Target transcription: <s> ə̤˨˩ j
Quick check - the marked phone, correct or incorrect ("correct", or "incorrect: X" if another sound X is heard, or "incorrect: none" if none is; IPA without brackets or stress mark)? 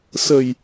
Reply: correct